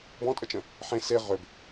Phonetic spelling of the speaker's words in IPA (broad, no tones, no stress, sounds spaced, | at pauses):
b ɔ̃ tʼ ə t͡ʃ ə̃ | ħ ẽ s e ʁ ø b